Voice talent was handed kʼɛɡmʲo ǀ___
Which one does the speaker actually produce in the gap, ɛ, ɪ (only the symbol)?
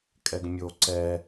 ɛ